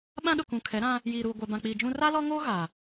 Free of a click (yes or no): yes